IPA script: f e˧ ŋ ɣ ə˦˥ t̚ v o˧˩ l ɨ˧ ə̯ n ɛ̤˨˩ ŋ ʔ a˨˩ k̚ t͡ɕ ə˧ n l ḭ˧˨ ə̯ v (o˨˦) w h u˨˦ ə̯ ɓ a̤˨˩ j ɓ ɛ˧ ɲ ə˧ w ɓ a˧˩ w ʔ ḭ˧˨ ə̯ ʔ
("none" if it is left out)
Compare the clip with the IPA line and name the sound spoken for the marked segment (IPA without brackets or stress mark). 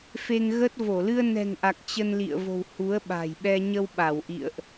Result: o̤˨˩